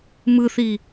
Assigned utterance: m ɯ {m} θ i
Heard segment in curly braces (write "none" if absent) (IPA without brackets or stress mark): none